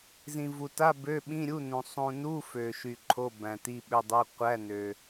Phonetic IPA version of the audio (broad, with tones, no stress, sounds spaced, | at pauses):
z ĩ˨ v u˨ t a˧˥˧ b ø˧˥˧ ɓ ĩ˧˥˧ ɾʲ u˧˥˧ n ũ˨ sˤ ũ˨ n u˧˥˧ f ø˨ ʃ y˨ ǃʰ o˧˥˧ b æ̃˨ t i˧˥˧ ɓ ø˧˥˧ dˤ i˧˥˧ qʷ æ˧˥˧ n ø˨